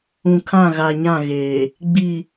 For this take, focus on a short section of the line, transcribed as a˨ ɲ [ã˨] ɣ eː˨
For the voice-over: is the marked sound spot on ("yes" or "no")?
no